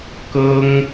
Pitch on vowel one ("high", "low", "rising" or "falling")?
high